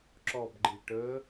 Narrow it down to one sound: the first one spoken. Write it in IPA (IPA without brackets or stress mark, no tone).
ǁ